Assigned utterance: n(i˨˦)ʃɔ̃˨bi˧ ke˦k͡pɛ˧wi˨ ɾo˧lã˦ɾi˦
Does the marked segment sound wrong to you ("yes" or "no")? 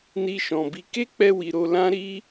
yes